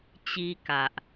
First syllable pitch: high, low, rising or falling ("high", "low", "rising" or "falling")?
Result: high